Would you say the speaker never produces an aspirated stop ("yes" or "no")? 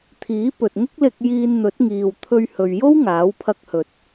no